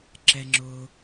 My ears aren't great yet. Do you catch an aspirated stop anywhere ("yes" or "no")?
no